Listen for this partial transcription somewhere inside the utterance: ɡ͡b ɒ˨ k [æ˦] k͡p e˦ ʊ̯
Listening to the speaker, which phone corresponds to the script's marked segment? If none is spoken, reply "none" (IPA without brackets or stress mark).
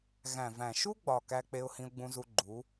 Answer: æ˦